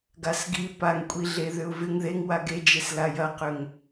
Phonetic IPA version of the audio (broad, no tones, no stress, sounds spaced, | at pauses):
ɡ a s ɡ i p a ŋ kʷʼ i ɮ e ð ʏ ʊ̯ v ɪ ŋ ð e ŋ w a ɡ e d͡ʒ e s l a j ɐ q ʏ ŋ